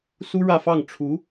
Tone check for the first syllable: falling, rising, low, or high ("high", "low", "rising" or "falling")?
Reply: high